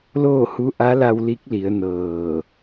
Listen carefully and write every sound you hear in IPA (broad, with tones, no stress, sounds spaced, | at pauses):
l oː˥˨ h u˧˥ ʔ a˧˥ l a˧ w l i˧˥ k̚ l i˩˧ ə̯ n ɤː˧˩